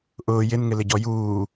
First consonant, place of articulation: glottal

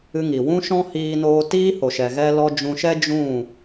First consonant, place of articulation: velar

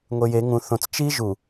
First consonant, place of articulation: velar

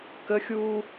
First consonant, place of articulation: velar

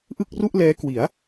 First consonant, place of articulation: glottal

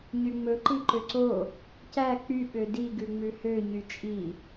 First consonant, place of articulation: palatal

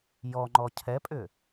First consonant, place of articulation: palatal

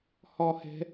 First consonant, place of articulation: glottal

